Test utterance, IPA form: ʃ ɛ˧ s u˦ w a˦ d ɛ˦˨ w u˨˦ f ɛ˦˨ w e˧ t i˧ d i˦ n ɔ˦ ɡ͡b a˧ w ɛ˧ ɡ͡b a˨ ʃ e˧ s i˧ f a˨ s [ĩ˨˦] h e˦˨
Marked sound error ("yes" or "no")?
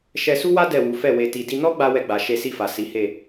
yes